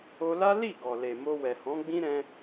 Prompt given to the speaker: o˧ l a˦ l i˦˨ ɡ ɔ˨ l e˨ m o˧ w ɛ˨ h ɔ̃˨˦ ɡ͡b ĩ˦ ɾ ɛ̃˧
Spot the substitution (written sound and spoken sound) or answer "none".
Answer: none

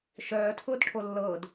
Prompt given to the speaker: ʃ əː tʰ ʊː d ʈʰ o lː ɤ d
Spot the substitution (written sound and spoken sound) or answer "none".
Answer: əː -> œː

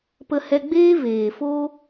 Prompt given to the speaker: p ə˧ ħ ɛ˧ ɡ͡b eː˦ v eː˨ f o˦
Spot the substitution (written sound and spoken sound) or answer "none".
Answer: ħ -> h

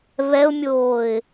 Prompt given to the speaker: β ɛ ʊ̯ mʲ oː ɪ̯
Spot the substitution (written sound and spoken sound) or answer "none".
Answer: none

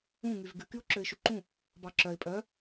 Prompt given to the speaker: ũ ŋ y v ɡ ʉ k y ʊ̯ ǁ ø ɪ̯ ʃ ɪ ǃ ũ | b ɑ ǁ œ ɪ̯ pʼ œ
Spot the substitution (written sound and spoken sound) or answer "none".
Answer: ɪ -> y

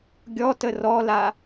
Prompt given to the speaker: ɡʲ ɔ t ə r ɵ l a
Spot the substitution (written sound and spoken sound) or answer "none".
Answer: ɵ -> ɔ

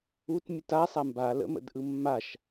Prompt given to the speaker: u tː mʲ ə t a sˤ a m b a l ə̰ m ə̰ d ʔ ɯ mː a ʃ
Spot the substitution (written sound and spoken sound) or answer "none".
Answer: tː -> t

